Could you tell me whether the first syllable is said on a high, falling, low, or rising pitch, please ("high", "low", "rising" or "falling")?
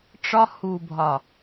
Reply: high